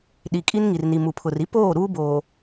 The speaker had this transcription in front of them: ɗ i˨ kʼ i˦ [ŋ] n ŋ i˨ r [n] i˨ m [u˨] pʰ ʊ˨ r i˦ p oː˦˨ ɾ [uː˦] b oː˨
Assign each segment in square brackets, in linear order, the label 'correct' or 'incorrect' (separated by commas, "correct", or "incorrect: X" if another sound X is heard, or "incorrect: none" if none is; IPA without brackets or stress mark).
incorrect: none, correct, correct, correct